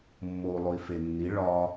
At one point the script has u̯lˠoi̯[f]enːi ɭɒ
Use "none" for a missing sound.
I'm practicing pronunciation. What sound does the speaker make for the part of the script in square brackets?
f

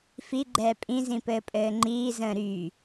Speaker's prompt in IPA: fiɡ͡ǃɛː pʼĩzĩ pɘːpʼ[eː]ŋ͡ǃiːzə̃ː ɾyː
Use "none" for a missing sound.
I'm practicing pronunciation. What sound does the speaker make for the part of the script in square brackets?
ɘː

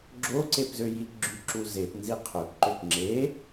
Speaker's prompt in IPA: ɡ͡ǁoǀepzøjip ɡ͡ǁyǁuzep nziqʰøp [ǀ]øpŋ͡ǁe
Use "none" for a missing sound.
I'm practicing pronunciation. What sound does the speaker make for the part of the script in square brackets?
ǃ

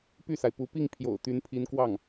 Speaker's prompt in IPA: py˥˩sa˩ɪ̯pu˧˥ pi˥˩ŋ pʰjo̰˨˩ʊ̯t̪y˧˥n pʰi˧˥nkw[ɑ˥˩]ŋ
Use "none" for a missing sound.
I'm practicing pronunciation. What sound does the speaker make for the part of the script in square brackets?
ɑ˥˩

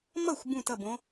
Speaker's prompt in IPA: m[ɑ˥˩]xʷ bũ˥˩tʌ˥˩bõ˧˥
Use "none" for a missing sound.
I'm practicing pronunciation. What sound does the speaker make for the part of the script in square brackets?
ʌ˥˩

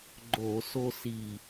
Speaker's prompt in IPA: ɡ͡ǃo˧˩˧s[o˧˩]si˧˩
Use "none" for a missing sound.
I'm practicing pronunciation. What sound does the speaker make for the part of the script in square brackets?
o˦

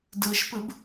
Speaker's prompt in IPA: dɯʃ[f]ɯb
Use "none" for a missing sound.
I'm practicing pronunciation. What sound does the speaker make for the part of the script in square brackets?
p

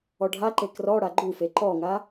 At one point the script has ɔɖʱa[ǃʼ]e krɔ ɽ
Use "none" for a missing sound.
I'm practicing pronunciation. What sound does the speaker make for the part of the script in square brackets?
ǃ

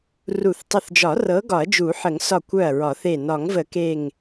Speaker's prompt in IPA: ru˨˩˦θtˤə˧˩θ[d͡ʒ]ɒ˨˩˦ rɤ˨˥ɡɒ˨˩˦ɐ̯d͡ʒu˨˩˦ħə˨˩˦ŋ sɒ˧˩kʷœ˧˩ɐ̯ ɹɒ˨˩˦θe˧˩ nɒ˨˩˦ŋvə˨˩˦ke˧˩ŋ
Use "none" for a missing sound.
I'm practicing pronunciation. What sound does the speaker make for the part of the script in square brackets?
d͡ʒ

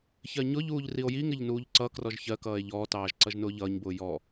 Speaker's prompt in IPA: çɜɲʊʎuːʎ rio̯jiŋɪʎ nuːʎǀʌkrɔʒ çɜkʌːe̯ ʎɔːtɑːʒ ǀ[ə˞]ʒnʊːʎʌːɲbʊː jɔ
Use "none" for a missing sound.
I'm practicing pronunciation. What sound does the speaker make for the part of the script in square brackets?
ʌ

